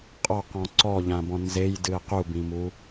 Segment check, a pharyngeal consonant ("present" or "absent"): absent